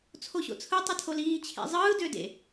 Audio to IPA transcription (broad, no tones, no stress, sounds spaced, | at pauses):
t͡sʰ o ɕ o̰ t͡sʰ ɯ tˤ ɯ tʰ o l iː t͡ɕʰ ḛ zˤ ɯː d ø d ḛ